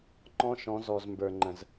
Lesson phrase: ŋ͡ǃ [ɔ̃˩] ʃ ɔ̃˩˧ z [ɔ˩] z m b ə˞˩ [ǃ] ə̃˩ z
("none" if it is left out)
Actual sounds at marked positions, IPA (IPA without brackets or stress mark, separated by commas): ɔ̃˧, ɔ˩, ŋ͡ǃ